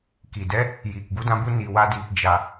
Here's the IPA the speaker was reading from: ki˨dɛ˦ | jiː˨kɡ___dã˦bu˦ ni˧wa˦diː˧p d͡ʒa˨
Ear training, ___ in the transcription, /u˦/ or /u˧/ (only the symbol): u˦